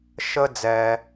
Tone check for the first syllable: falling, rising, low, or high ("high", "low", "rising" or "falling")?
high